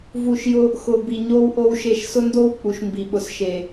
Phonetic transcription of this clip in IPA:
v u˨ ʃ j ʊ˧ | x ʊ˨ b i˨ ɲ o˦ w ʔ o˦ w ʃ e˦˨ ʃ s ʊ˦ n d o˦ w k͡p u˨ ʃ m b i˨ ɓ ʊ˨ s ʃ e˨

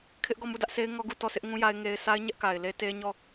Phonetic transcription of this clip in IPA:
kʰ ɪ˦ ʔ ɡ ɔ˦˨ m u˦˨ d ä˦ ʔ s e˦ ɪ̯ ŋ ɔ˦ ɡ u˦˨ t ɔ˦˨ s ɪ˦ ʔ ŋ ũ˦ j a˦ ɪ̯ ŋ e˦ ɪ̯ s a˦ ɪ̯ ɲ ɛ˦ ʔ k a˨ ɪ̯ l e˦ t e˦ ɲ ɔ˦˨

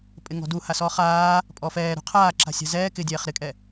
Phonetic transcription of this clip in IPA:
pʼ ɪ ŋ ɔ̤ d u h a s ɔː χ aː | pʼ ɔ f ɛː ɾ ṳ qʰ aː ǁ a̤ sʲ a̤ z ɛː k ɪ dʲ ɛː χ ɾ ɪ kʼ ɛ

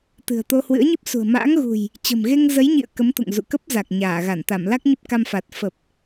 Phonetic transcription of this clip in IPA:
t̪ ɨ̤˨˩ ə̯ t̪ o˧ h w ɨ̰˧˥ ə̯ ɲ ɨ˦˥ p̚ s ṳ˨˩ ə̯ m a̰ː˧˥ ŋ ɣ ṳ˨˩ j | t͡ɕ ə̤˨˩ m ɣ e˧ ŋ z ə˨˦ j ɲ ḭ˧˨ ə̯ k ə˨˦ m t̪ ṵ˧˨ ŋ z ṵ˧˨ k ə˦˥ p̚ z a˨˩ k̚ ɲ aː˧˩ ɣ a˧˩ n t̪ a˧˩ m l a˦˥ k̚ ɲ ə˦˥ p̚ k a˧ m f aː˨˩ t̚ f ə˨˩ p̚

